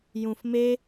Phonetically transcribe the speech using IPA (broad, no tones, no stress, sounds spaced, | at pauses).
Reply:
j ũ f m e